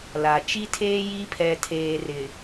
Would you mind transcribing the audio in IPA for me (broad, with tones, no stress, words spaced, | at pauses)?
la˨ t͡ʃi˦tʰeː˦ ji˦pʰɛ˨tʰeː˨rɪ˨